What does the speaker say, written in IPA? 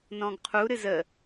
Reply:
n ɔ̃ ɡ qʰ u ɾ ɨ z ə

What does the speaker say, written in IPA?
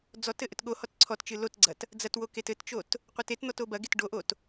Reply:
d͡z ɔ t ɘ ʔ ɘ t ɠ o h ɔ t ǀʰ ɔ t t͡ʃ ɨ l o t ɡ͡ǀ ɐ t | d͡z ɐ t w o k e t ɘ t t͡ʃ o t | qʷ ɘ t e t n̪ ɔ t o b ɐ ɡ e t ɖ o ʔ o t

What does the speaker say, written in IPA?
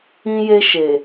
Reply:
ĩ˦ j e˦ ʃ e˨

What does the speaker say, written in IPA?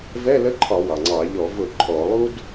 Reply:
v ɛ˧˥˧ l ə˧˥˧ ǃʰ ɒ˧˩˧ w ɑ˩ ŋ͡ǀ ɑ˧˩˧ ʎ ɔ˧˩˧ v ʊ˧˩˧ ǃʼ ɔ˧˩˧ lˠ u˥ d

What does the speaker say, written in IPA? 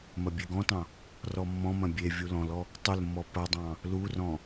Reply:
m ɐ bʲ e ɡ ɔ̃ t ɑ̃ | r ɔ mː ɔ̃ m ɐ̃ bʲ e vʲ u l ɔ̃ l ɔ | tˤ ʊ l mː ɔ p ɐ dˤ ɑ̃ | l u r ɔ̃

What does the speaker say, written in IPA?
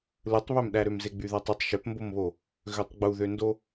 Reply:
l ɯ tˤ β ø m ɗ æ ɾ ø m z e ɡ͡b y ð æ tˤ i tˤ ʃ ø p m b o m β o | ɣ ø tˤ ɡ͡b u ð ø n d o

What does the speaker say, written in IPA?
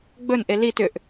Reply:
ɡ͡b ɵ n ʔ e l i t ʏ ʔ

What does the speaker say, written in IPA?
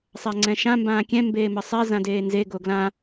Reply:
sˤ a ŋ͡ǀ ɛ̃ ʃ ã m b ãː kʲ ɛ̃ m b eː m ə sˤ ɛ z ã d eː n z e ɡ o ɡ l ã

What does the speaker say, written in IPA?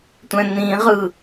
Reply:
tʷ ɛ̃ n̪ ĩ ʁ ɯ

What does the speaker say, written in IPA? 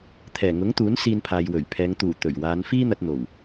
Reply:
t̪ʰ ɛː˨˩ ŋ ʊ˨˥ ŋ t̪ uː˨˥ n s iː˧ n pʰ aː˨ j w ɵ˨˩ ɥ pʰ ɛː˨˧ ŋ t̪ uː˨˩ t̪ ɵ˨˩ ɥ w aː˨˧ n f iː˥ n̪ ɐ˧ t̚ n̪ o˨˩ w

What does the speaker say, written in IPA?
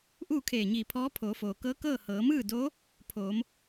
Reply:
ʔ uː˥˨ kʰ eː˧˩ ɲ iː˧˩ pʰ ɔː˧˥ pʰ oː˩˧ f oː˩ k ɤː˧˥ k ɤː˥˨ h ɤː˩˧ m ɯː˥˨ d oː˧˥ | pʰ oː˩˧ m

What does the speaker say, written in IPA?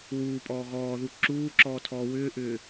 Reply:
w uː pʼ ɔː ɣ ɔː ð u ǁ uː ǁ ɔː tʰ ɔː w ʏː ʔ ʏː

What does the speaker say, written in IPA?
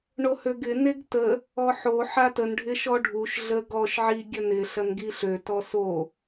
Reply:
ɳ o h ø ɡ ɪ n e ɡ t ə | ɔ ħ o ħ a t ə n ɖʱ ɪ ʃ ɔ ɖʱ u ʃ ɮ ə ɡ ɔ ʃ ʕ i ɡʲ ɐ n ɪ ɬ ɐ n ɡ i ɬ ø t ɔ s o

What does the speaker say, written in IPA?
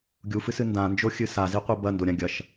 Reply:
ɡʲ u f ɨ s ɨ n d ã n d͡ʒ o xʲ ɨ s a z i qʷ i b ɐ n d o ɾʲ ã ɡʲ ɐ ʃ

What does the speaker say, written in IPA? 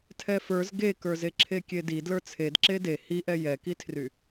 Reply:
tʰ ɛ f ə˞ z ɡ e k ə˞ z e ǁʰ e kʲ e d i d l ə˞ t͡sʰ e d ǁ e d e h i ʔ ɛ j ɛ k i tʰ r y

